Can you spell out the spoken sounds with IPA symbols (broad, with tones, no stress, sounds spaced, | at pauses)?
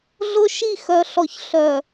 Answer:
ɮ ʊ˦ ʃ i˦˨ x œ˨ ɬ ɔ˨ ç ɬ œ˨